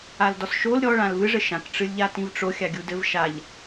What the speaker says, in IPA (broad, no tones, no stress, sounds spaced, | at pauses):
a l d ɔ s ʃ o l ɾʲ ɔ ɭ ã l v ɨ ʐ ɘ ʃ ã k ʈ͡ʂ ɨ lʲ ʎ a t ĩ v ʈ͡ʂ o xʲ a ɡʲ u d ɘ v ʃ a ʎ